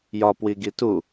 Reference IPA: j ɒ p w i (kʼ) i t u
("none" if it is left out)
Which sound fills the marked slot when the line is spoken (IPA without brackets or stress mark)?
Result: ɡ